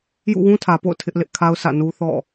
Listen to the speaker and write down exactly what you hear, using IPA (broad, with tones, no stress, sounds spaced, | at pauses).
j ṵ˦˨ w ũ˦ tʰ ä˨ p o̰˦˨ ʊ̯ tʰ ɪ˦ ʔ l ɪ˦ ʔ kʰ a˦ ʊ̯ s ä̰˦˨ n u˦ θ ɔ̰˦˨